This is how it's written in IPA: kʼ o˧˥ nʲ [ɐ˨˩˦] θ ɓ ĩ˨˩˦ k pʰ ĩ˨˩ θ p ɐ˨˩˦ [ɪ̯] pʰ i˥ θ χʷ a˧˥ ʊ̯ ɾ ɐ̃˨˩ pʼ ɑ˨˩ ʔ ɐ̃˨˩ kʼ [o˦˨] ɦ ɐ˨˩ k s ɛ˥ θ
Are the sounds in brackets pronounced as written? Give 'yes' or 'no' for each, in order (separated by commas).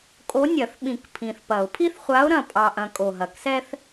yes, no, no